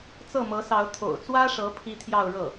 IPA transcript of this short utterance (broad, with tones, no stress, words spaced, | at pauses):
t͡sɤ˥˩mɤ˧˥sɑ˧˥ʊ̯ t̪ʰo̰˨˩ʊ̯t͡swä˥ʂɤ˧˥ pʰi˥t̪ʰjɑ˥˧ʊ̯ɻɤ˥˩